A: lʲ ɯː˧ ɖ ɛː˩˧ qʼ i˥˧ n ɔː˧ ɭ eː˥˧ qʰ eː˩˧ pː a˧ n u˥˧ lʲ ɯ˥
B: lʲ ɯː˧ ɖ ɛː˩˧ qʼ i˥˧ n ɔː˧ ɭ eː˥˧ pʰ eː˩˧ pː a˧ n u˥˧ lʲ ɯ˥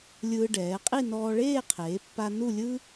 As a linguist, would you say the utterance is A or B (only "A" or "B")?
A